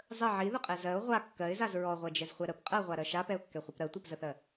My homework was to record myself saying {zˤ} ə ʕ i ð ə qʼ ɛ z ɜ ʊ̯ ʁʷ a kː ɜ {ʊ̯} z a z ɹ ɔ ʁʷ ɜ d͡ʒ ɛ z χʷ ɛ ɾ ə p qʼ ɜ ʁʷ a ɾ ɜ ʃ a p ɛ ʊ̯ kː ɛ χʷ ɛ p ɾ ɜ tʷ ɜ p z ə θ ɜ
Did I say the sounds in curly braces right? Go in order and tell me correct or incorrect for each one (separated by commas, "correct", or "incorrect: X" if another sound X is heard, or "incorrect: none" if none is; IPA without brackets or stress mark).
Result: correct, incorrect: ɪ̯